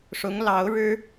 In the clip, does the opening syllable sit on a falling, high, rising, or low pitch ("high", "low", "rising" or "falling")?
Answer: rising